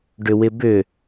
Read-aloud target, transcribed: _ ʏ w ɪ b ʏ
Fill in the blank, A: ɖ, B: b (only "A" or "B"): A